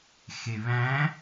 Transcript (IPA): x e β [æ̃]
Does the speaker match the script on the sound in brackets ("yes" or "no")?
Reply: yes